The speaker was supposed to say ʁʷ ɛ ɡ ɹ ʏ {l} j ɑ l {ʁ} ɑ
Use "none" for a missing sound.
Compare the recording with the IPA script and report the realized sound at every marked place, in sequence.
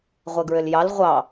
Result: l, ʁʷ

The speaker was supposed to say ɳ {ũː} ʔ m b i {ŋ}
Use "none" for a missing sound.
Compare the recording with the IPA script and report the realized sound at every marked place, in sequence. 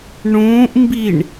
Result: ũː, ɳ

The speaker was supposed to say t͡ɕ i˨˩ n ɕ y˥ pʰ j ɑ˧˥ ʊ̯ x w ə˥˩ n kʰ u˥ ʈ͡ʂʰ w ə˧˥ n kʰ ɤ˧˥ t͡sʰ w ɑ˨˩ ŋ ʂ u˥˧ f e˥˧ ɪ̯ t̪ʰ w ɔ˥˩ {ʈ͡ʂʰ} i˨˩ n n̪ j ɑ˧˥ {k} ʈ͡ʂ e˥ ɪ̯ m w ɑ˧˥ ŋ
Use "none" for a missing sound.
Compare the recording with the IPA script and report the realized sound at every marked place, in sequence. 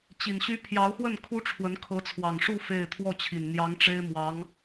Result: t͡ɕʰ, ŋ

